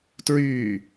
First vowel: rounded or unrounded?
rounded